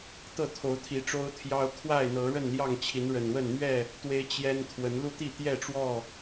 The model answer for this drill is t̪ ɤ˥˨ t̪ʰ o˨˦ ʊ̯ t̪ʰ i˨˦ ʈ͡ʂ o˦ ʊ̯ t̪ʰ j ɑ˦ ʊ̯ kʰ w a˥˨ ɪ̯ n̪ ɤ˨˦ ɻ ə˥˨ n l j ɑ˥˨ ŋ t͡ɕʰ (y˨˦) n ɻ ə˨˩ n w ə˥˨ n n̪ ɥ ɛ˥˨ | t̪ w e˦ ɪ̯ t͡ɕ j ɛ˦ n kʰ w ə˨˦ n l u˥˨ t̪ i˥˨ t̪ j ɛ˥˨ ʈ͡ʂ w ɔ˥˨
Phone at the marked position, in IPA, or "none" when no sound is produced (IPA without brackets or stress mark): i˨˦